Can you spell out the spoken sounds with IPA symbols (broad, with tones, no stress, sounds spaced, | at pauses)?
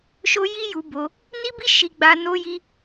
ʃ o˦ j i˦ j u˧ b o˧ | n i˦ b i˦ ʃ i˦ ɡ͡b a˦ n o˦ j i˦